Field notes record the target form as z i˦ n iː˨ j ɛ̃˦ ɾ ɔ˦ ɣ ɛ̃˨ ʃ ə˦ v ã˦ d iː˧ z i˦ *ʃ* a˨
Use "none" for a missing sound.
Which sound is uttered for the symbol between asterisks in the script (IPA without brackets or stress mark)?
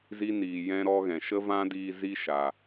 ʃ